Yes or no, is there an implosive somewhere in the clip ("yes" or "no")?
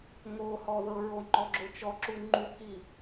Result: no